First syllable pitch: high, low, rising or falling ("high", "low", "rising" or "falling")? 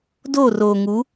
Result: falling